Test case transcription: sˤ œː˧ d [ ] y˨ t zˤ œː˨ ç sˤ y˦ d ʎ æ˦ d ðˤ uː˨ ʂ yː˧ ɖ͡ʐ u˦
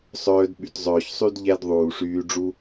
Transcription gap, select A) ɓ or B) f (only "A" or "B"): A